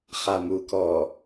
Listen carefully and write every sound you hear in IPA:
χ a m u k ɔː

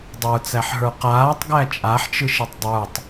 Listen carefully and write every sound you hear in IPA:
dˤ ə˞ t͡s æ ħ ɦ ə˞ q aː tˤ ɡ æ t͡ʃʼ a ħ t͡ʃ ɯ ʃ e tˤ dˤ ə˞ tˤ

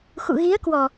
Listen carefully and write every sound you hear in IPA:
x ṵ˧˨ ɣ i˨˦ ə̯ k w ɔ˨˩

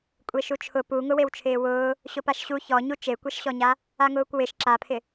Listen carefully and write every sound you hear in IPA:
kʷʼ e ʃ u t͡ʃʰ ʊ p u ŋ ʊ w e w t͡ʃʰ ɪː w ʊː | ɕ ʊ p a ʃ ɕ u ç ɔ ɲ u t͡ʃ e kʷ ɛ ʃ ɕ ɔ ɲ a | a ŋ ʊː kʷ w ɪ ʃ ǁ a pʰ ɪ

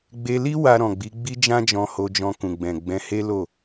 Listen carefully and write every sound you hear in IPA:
ɡ͡b e˧ l i˦ w a˧ ɾ ɔ̃˨ ɡ͡b i˨˦ ɡ͡b i˦ d͡ʒ ã˦ d͡ʒ ɔ̃˧ h o˧ d͡ʒ ɔ̃˧ k ũ˨ ɡ͡b ɛ̃˨ ɡ͡b ɛ̃˨˦ h e˦ l o˦˨

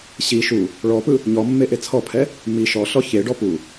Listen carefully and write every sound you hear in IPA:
ɕ i ʃ u | ɭ ɔ p ɯ | ɲ ɔ mː e ʔ e t͡sʰ ɔ pʰ ɛ | m i ʃ ɔ ɬ ɔ ç e ɖ ɔ p u

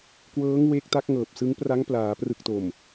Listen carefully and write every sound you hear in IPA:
k w ɤː˦˥ ŋ w eː˦˥ k̚ t a˦˥ k̚ ŋ ɤː˨˩ p̚ s ɯ˦˥ ŋ p r a˦˥ ŋ p l aː˩˦ p r ɯ˨˩ k̚ t o˨˩ m

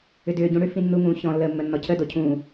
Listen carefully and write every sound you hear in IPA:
ʏ d ʏː ɟ ũ ɽ ʏ f ĩ nː u ŋ ũː ç ɔ̃ lː əː mː ə nː ɔ cʰ ə d o cʰ ũː

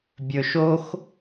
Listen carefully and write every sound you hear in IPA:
bʲ ɵ ʃ o x

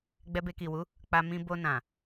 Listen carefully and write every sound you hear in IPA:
ɡ͡b ɛ˧ b e˧ k i˨ w u˨˦ | k͡p a˧ m ĩ˧ b o˧ n ã˨

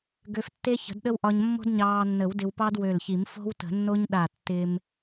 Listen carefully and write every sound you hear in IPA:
ɡ ø˧ f tː e˥ ç ə̤˨˩˦ d ɗ ə˥ w ʔ ɒ˧ ɲ mː o̤˥ d ɲ ɑː˧ nː ə˨˩˦ w d ɪ˧ w p ɑ˥ d w ø˧˩ l ç i˨˩˦ m f o̤˥ w t ə̤˨˩˦ nː o˥ ɲ ɗ a˧˩ tː ɪ˧ m

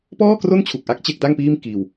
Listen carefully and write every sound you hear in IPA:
p ɔː˥˩ k r o˥˩ n t͡ɕʰ u˨˩ k̚ ʔ a˦˥ k̚ t͡ɕ e˦˥ k̚ d a˥˩ ŋ p iː˥˩ m k iː˧ w

